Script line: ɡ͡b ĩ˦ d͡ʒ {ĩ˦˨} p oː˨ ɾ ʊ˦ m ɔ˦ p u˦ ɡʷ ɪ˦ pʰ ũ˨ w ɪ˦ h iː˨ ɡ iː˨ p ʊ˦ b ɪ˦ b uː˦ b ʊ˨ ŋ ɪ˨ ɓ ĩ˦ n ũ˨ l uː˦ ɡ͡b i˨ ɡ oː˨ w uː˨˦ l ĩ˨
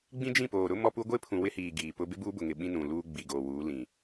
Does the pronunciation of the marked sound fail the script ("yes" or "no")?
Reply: no